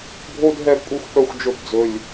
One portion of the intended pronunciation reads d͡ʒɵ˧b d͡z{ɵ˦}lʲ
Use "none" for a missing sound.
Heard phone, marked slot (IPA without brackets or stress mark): ɵ˨